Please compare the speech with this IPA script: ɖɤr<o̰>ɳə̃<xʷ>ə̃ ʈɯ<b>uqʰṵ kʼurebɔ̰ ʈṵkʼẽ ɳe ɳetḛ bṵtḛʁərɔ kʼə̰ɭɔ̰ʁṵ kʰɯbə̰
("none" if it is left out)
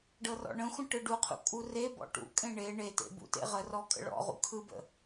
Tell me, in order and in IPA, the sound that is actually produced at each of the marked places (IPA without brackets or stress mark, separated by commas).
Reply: ɔ̰, xʷ, ɖ